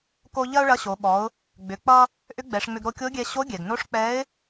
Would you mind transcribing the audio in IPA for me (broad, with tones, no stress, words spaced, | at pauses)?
ko˧ ʎɐ˥ʊ̯ɭɐ˧˥ɕo˩˧ ɓɔ˩˧ʊ̯ | ɡ͡bʏ˩˧ k͡pʌ˧ | ʔʏ˧˥ɡ͡bɛ˩˧ʂŋ͡mʏ˧ɡ ɾo˧kʲo˧˥ɡʲɛ˧ ɕo˧˥ɡʲɛ˩ɡno˧˥ʂ k͡pɛ˧˥ɪ̯